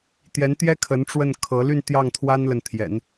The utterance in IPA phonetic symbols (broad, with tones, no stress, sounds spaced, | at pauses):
t̪ j ɛ˧˥ n t̪ j ɛ˥ kʰ ə˧˥ n ʈ͡ʂ w ə˥˩ n kʰ ɤ˧˥ l y˥˧ n t̪ j ɑ˥˩ ŋ t̪ʰ w a˥ n l ə˨ n t̪ʰ j ɛ̰˨˩˦ n